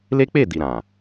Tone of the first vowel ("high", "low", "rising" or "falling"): high